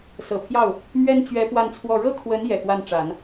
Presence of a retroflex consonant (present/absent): present